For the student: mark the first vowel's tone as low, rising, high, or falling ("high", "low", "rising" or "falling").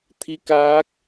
rising